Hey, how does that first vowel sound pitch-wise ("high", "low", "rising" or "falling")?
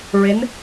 rising